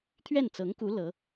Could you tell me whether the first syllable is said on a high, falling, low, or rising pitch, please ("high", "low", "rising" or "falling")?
falling